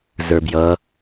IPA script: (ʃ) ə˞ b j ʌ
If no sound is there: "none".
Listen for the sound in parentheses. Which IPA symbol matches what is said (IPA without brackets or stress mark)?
z